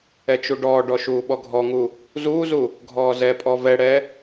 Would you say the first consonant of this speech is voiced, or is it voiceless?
voiceless